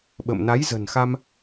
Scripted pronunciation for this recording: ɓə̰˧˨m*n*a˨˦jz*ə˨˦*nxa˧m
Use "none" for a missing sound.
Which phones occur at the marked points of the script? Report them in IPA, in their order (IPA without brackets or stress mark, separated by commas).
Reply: n, ə̤˨˩